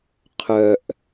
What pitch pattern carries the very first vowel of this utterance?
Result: low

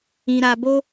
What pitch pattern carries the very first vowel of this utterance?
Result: low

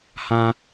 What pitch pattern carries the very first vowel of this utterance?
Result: high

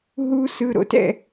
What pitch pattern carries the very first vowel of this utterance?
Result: high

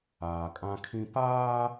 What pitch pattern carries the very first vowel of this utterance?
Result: low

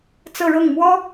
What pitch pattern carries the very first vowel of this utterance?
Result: falling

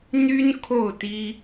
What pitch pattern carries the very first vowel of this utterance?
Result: high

